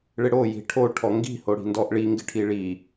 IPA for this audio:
ɭɪɽo ji̤ʈʰo ʈʰɔŋɡi̤ hoɽi̤ndɔʔɭi ŋɡɪʈʰiɭi

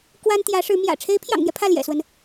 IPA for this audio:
kwa˥n t̪jä˧˥ʂɻ̩˧˥ mjä̰˨˩ ʈ͡ʂʰe˧˥ɪ̯pʰjɑ̰˨˩ŋn̪jɛ˦ pʰä˥˩ljɛ̰˨˩swə˦n

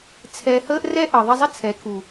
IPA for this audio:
t͡sʰɛ˧həː˦ʔrɛ˦ ʔəː˨ðˤɛ˧zˤə˦ t͡sʰɛ˨˦kʰu˨

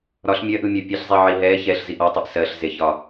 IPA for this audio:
ɾɒɬ mʲɜʔɯmʲɜ pʲɛɬzˤiʕi ɦɛ çɛɬziʔ ɔtˤeʔ sɜɬzeçɒ

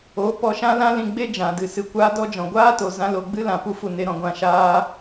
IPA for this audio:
o˨˦ pɔ˧ʃã˦lã˦lĩ˧ ɡ͡be˦d͡ʒã˨dɨ˨ sɨ˨kʷaː˧dɔ˧ d͡ʒɔ̃˨ɡʷaː˦to˨ zã˧ lo˨ɡ͡bɨ˧ lã˨pu˧fu˨ ne˨ɾɔ̃˨ ɡʷã˨ʃaː˧

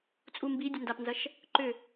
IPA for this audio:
t͡sʼumbidʲʊ ndapnzɐʃ | ǃʏ

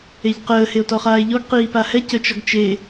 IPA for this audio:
eʎqəː heo̯tɔχaːe̯ʎɔɡ qiːpahɛ cət͡ʃɔɡt͡ʃe

